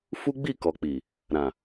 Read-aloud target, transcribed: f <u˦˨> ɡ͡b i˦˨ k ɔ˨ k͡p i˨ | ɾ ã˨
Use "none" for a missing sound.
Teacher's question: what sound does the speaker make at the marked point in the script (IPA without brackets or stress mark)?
u˦